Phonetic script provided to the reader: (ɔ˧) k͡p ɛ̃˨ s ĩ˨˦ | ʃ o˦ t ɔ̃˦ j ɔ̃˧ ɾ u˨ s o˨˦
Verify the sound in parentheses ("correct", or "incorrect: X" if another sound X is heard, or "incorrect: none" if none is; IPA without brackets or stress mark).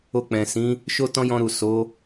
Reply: incorrect: o˧